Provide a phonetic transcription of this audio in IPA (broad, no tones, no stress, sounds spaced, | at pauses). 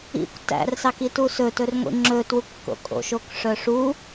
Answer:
ḭ kʷ t æ̰ r s ɑ k i t u s ɵ t ɵ r ŋʷ ḭ ŋ͡ǁ ɵ t w u kː o̰ kʼ o̰ ʃ o k ʂ œ ʂ u